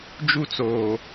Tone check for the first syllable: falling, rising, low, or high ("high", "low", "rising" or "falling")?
high